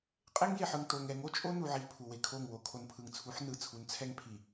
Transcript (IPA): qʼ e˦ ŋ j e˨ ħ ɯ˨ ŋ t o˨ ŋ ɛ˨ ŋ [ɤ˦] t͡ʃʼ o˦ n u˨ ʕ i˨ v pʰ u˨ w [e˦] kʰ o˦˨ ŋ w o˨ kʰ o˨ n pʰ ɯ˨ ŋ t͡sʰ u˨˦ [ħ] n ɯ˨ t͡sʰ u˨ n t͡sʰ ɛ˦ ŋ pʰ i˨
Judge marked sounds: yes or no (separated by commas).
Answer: no, no, yes